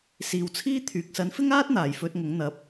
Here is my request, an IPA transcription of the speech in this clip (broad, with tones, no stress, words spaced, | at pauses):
siː˨wt͡sʰiː˥t̪ʰyː˨k̚ sɐ˨˥nfɪ˥ŋaː˥t̚ n̪aː˨˩j fɵ˧t̚ŋʊ˨˥ŋn̪ɐ˨˥p̚